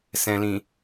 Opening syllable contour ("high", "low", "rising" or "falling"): low